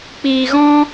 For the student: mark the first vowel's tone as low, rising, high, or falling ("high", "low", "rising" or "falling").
low